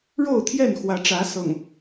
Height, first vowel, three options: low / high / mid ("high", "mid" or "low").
mid